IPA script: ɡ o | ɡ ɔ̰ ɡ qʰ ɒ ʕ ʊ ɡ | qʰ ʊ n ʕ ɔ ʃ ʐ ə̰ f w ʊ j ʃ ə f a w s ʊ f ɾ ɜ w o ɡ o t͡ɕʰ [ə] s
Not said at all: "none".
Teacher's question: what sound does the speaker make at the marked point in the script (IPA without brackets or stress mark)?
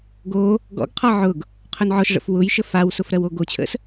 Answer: ə̰